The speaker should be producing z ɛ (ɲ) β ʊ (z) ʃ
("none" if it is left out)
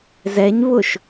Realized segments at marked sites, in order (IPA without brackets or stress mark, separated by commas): ɲ, none